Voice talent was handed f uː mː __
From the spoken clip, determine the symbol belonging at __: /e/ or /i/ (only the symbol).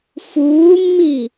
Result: i